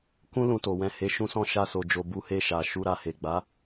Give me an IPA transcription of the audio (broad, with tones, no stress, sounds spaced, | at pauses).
k ũ˦ l ũ˧ t o˨ w ɛ̃˧ h e˧ ʃ ũ˧ s ɔ̃˧ ʃ a˧ s o˨ d͡ʒ o˨ b u˨˦ h e˧ ʃ a˨ ʃ u˧ ɾ a˧ h e˨ ɡ͡b a˨˦